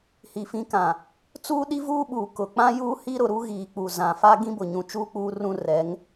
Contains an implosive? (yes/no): yes